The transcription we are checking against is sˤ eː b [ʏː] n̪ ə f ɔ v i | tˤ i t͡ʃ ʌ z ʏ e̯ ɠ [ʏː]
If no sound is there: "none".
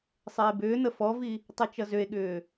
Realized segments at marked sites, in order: ʏː, ʏː

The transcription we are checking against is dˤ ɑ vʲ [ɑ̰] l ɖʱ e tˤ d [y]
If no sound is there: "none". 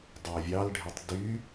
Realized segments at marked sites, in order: ɑ, y

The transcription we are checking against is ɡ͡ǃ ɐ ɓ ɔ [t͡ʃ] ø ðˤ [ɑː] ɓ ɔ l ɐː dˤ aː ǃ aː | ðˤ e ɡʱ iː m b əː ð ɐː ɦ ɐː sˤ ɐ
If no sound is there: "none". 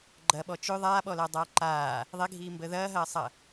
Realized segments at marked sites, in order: t͡ʃ, aː

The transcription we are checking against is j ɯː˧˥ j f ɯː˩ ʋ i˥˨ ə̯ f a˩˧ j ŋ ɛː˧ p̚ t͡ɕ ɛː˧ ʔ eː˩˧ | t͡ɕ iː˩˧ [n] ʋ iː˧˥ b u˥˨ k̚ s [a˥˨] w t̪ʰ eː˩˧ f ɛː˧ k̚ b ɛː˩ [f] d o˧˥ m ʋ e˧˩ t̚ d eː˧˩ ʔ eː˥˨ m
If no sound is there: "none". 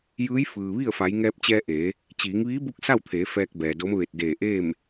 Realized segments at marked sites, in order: ŋ, a˥˨, none

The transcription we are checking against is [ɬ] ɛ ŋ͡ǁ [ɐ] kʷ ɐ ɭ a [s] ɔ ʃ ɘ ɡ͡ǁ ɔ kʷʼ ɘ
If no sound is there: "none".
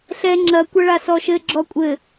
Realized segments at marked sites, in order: ɬ, ɐ, s

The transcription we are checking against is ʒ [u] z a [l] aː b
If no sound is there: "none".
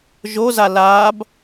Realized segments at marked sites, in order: o, l

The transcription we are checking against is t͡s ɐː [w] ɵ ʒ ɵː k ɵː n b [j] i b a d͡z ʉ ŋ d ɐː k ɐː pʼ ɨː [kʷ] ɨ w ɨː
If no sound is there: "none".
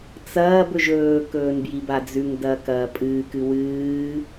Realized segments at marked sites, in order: b, j, k

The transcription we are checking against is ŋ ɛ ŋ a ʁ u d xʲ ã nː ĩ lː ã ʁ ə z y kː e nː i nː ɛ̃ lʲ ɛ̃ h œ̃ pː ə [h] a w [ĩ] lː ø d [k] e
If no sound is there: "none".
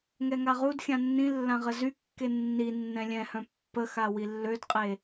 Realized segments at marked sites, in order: x, i, qʼ

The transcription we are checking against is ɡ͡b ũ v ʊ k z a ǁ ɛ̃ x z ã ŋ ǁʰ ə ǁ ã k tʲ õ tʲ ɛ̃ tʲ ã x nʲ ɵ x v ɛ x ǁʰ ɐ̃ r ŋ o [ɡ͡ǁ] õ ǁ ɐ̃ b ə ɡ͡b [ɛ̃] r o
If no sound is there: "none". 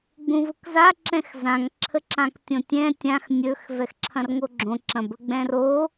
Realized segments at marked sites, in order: ɡ͡ǁ, ɛ̃

